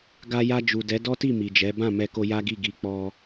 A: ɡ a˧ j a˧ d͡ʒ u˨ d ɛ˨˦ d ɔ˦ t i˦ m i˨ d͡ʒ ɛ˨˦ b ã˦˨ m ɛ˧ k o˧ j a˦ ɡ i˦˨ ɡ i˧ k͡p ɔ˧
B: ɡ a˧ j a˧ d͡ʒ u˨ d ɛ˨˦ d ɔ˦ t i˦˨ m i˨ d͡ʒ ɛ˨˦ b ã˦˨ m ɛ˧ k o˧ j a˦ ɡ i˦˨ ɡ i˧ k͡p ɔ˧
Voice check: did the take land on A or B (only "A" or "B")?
B